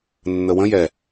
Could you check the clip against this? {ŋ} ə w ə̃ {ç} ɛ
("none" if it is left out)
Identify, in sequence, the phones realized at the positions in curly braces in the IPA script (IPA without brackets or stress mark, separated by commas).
nː, j